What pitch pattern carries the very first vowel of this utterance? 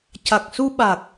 low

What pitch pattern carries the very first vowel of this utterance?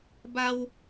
high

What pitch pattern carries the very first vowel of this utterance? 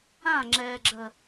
falling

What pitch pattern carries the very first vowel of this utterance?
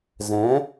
rising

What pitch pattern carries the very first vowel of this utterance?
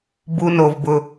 high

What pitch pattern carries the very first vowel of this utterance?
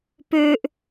high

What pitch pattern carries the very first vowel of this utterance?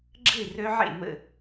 falling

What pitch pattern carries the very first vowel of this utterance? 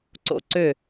rising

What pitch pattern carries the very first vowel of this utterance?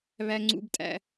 high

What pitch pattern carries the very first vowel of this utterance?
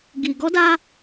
low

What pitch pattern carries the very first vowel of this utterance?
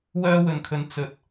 high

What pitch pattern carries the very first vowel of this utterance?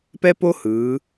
high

